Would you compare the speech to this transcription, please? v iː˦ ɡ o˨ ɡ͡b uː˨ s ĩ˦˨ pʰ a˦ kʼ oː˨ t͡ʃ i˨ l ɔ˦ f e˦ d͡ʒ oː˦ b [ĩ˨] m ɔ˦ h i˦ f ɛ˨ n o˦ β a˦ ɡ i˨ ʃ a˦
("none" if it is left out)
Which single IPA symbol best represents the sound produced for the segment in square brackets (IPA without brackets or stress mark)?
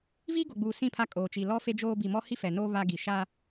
i˨